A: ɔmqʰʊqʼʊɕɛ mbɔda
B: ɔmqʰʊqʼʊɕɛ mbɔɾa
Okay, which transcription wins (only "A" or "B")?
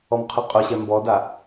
A